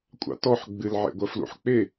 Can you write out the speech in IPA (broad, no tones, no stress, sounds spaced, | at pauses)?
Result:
kʷʼ ɑ̰ t ɔ ħ ɡ͡b ɨ l ʕ ḛ ɡʷ ɐ f l ṵ ħ k͡p e